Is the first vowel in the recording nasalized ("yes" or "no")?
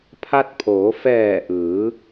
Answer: no